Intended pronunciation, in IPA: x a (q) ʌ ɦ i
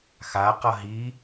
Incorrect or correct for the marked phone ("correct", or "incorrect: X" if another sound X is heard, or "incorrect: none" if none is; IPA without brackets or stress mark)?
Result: correct